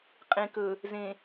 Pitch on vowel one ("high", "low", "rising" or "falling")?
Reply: low